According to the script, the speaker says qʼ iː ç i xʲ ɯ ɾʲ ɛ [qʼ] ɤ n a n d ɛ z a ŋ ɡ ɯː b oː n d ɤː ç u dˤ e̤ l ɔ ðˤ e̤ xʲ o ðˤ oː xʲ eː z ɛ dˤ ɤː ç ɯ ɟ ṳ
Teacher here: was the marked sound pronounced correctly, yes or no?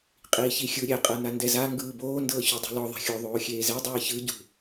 yes